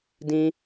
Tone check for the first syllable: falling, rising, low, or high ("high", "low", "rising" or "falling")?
high